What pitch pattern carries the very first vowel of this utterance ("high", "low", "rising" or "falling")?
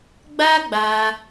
high